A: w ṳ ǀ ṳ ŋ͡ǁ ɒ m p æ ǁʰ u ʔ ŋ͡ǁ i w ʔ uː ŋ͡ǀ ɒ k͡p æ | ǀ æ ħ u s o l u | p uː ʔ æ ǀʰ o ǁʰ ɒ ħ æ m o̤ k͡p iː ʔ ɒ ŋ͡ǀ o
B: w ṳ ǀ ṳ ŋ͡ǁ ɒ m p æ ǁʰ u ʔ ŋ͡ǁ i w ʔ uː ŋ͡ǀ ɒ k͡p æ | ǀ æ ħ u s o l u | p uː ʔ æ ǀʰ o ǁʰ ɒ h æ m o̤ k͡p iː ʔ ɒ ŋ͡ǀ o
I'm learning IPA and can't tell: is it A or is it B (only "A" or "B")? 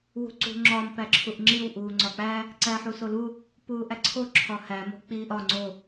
B